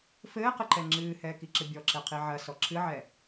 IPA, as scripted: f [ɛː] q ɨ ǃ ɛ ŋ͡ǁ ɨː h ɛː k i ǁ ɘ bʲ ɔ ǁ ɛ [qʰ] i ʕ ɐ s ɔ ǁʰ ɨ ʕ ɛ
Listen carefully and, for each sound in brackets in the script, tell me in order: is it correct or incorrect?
incorrect: ɘː, correct

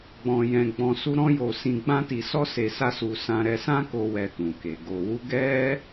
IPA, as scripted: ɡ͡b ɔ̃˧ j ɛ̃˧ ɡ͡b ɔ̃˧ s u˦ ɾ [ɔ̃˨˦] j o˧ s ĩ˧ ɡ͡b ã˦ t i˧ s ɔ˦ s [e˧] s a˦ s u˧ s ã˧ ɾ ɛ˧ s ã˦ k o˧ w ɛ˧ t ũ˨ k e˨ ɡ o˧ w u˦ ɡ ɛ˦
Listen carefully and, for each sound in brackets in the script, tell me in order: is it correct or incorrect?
incorrect: ɔ̃˦, correct

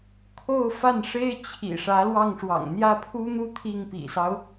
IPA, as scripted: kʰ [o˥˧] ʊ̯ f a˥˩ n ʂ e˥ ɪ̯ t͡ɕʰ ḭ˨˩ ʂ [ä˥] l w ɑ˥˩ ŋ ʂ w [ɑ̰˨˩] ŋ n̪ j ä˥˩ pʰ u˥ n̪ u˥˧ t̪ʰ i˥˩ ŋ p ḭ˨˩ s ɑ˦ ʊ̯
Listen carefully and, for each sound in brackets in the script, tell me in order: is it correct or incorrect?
correct, incorrect: ä˧˥, correct

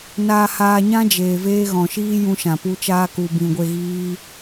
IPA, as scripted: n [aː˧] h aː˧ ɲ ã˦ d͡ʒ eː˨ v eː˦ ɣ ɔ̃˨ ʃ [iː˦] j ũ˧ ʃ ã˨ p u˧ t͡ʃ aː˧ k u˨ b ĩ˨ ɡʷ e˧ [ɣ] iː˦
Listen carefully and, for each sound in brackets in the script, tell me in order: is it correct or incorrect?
correct, correct, correct

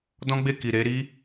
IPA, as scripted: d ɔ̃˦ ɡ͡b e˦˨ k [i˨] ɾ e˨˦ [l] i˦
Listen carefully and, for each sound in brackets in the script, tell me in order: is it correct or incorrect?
correct, incorrect: ɾ

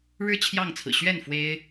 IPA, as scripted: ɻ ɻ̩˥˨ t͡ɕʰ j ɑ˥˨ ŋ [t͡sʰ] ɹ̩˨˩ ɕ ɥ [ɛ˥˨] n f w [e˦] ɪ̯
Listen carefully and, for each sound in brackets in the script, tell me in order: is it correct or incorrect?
correct, correct, correct

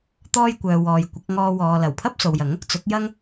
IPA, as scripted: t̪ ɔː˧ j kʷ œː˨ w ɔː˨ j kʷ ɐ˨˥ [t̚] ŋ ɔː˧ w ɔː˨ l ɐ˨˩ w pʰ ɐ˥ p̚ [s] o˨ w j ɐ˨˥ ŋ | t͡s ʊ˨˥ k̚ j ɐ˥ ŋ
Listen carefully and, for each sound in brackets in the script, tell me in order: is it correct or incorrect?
incorrect: k̚, correct

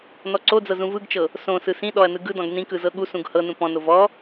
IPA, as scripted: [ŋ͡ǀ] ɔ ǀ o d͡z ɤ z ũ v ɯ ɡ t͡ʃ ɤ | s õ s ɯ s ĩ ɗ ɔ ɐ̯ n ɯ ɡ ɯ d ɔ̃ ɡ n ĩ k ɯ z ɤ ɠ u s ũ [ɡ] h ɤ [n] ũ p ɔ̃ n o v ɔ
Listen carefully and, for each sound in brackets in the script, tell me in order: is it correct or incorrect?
incorrect: n, correct, correct

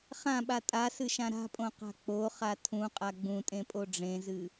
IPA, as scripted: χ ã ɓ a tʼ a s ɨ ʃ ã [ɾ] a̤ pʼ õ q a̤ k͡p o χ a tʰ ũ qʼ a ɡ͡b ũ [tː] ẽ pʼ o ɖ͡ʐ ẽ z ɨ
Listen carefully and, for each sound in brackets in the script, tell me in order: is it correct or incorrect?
correct, incorrect: tʼ

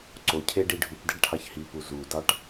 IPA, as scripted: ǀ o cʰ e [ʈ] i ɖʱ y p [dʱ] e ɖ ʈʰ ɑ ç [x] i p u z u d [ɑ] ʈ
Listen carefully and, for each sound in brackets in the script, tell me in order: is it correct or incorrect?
incorrect: ɖ, incorrect: d, incorrect: h, correct

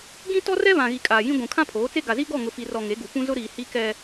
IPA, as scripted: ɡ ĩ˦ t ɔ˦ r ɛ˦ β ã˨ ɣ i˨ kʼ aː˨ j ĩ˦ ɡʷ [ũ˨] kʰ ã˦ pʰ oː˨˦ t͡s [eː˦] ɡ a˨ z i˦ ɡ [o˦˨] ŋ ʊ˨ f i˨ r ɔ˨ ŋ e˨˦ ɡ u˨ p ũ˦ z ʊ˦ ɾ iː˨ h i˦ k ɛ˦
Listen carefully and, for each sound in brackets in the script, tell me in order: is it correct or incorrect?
correct, incorrect: e˦, incorrect: ɔ˦˨

